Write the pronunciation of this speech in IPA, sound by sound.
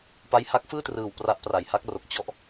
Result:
p a˦˥ j h a˦˥ k̚ f ɯː˥˩ t r ɯː˨˩ w p r a˦˥ ʔ p r a˨˩ j h a˦˥ k̚ r o˨˩ k̚ t͡ɕ ɔ˦˥ ʔ

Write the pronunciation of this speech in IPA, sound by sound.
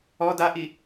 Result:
ɔ d a ʔ i

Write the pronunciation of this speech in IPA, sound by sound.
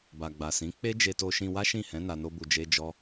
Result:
b a˨ ɡ͡b a˨ s ĩ˨˦ k͡p e˦ d͡ʒ e˧ t o˧ ʃ ĩ˧ w a˦ ʃ ĩ˦˨ h ɛ̃˨˦ n a˧ n o˦ b u˧ d͡ʒ e˦ d͡ʒ ɔ˦

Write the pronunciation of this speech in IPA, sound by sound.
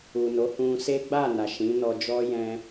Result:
u˨ n o˨˦ h ũ˧ s e˦ ɡ͡b a˦˨ n a˨ ʃ ĩ˨˦ n ɔ˧ d͡ʒ ɔ˦ j ɛ̃˧

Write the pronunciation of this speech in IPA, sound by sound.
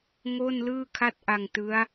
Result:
ŋ o˥˩ n l ɯː˥˩ kʰ a˥˩ t̚ ʔ a˧ ŋ t ɯ˦˥ a̯

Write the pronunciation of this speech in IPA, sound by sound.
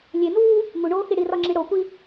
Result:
lʲ e n uː | ŋ u ɳ oː x i ɽ i r ɒ ŋ͡ǁ i ɽ o kʷ i

